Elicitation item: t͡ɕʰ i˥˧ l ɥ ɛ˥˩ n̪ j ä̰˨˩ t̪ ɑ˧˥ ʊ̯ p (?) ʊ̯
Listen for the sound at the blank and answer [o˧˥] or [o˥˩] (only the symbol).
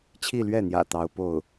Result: o˥˩